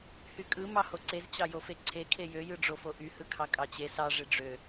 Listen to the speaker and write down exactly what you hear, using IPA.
h y kʼ ɯ m ɑ h o ǀ e z t͡ɕ ɑ j o f e ǀʰ e kʰ e j ø j ɯ ɖ͡ʐ o f o ʔ y h ɯ kʰ ɑ kʼ ɑ t͡ɕ e s ɑ ʐ e ɖ͡ʐ ø

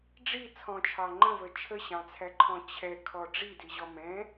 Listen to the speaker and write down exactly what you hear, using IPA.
ɖ͡ʐ i t͡sʰ ɔ̃ t͡ʃʰ ɑ ŋ͡ǃ ə̃ v ə t͡ʃʰ ə ɕ ɑ̃ t͡sʰ æ ǃʰ ɔ̃ t͡ɕʰ ɛ kʰ ɔ ɖ͡ʐ i d i ʑ ɔ m ɛ̃

